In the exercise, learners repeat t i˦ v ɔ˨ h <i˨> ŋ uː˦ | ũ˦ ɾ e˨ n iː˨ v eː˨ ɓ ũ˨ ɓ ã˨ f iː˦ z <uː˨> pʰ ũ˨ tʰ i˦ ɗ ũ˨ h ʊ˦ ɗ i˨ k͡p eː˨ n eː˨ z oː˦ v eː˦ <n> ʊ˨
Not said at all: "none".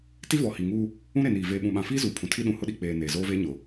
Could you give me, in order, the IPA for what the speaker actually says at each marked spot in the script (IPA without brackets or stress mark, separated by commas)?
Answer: i˨, uː˨, ɲ